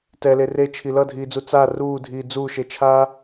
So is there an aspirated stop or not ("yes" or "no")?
yes